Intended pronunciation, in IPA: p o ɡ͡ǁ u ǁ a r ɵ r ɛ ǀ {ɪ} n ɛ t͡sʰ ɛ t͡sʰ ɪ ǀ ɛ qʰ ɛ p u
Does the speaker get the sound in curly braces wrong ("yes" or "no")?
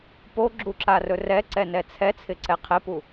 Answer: yes